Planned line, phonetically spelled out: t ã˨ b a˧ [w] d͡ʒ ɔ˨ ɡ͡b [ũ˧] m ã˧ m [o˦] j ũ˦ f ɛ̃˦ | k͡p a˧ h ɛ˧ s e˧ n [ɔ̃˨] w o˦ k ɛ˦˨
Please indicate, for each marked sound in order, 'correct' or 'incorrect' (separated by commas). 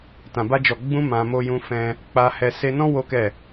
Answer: incorrect, correct, correct, incorrect